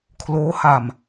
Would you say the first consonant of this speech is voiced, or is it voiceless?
voiceless